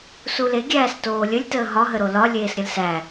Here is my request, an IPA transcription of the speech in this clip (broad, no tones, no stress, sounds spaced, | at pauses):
s u l e ɡʲ æː s t oː lʲ ə lʲ t əː ɦ ɒ ɦ ə ɾ o l ɒ lʲ eː s ɾʲ ə l s æ